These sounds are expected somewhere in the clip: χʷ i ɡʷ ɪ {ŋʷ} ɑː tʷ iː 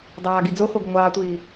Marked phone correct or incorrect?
correct